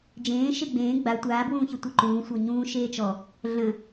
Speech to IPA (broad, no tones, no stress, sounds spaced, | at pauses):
d͡ʒ ẽː ʃ e ɡ͡b ẽː ɡ͡b a tʷ aː b w ũː ç ə tʷ ə ǃ ũː sʷ ɤ ɲ ũː ʃ eː t͡ʃ ɔ | ɮ ə̃